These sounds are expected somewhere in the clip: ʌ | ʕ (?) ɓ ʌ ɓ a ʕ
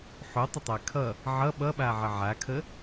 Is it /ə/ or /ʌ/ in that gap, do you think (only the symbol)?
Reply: ʌ